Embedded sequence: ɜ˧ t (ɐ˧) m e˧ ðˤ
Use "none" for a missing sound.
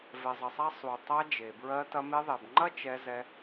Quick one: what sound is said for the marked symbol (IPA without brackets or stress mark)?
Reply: ɐ˧